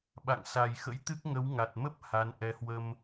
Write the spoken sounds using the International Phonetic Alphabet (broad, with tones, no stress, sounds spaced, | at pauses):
ɓ a̰˧˨ ŋ s a˨˩ j x ə̰˧˥ j t̪ ɨ˦˥ k̚ ŋ ə˨˦ w ŋ a˨˩ t̚ m ə˦˥ p̚ h a˨˦ n ʔ ɛ˨˦ h w ə˧ m